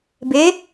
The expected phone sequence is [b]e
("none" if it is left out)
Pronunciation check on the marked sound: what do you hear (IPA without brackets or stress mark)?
b